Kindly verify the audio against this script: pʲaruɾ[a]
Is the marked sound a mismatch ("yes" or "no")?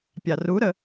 yes